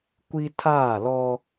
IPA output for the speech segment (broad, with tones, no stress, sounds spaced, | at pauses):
kʷ i˦ tʰ aː˦˨ l ɔ˦